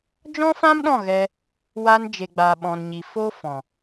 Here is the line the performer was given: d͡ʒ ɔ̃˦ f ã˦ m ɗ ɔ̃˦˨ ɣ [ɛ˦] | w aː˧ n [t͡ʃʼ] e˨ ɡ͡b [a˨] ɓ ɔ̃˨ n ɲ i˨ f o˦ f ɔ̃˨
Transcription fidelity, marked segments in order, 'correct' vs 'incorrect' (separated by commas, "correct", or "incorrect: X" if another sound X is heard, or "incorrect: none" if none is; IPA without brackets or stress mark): incorrect: ɛ˧, incorrect: d͡ʒ, correct